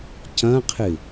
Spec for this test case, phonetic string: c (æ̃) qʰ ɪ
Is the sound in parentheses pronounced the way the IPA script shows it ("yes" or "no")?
no